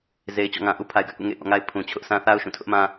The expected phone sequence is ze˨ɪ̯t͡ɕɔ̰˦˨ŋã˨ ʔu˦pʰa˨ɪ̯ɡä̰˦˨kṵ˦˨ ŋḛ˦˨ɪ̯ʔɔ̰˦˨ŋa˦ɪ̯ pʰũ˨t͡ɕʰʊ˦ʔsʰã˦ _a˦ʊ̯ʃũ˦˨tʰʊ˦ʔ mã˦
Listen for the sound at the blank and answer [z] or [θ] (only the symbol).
θ